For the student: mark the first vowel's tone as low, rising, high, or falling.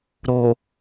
low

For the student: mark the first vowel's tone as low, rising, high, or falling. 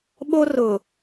high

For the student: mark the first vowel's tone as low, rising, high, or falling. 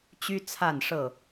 high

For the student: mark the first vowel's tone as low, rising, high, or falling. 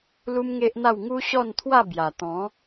high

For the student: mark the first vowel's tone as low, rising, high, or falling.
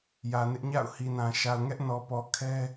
low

